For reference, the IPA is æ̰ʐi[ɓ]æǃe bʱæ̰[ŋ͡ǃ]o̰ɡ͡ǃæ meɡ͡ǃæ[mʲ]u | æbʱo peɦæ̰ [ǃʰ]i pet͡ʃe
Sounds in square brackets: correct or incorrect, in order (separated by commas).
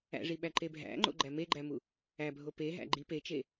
correct, correct, incorrect, incorrect